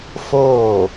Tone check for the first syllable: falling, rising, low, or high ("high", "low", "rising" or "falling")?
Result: falling